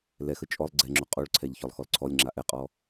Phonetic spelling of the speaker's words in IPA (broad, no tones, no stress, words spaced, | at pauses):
lɛxə t͡ʃʼɔlˠ ɡ͡ǀɛŋ͡ǁo qʼoɭǀʰɛʎ çɔlˠxɔlǀʰɔlʲŋ͡ǁa ʔɛqʼɔ